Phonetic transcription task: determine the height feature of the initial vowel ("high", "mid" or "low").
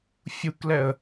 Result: high